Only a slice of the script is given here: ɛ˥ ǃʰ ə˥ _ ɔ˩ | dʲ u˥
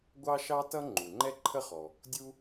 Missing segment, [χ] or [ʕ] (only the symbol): χ